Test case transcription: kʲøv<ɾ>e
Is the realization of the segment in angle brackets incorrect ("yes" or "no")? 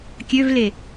yes